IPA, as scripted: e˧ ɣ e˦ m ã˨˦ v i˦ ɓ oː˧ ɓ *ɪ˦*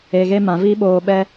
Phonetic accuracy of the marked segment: incorrect: ɛ˦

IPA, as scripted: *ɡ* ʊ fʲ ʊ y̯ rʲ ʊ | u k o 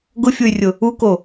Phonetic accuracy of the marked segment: correct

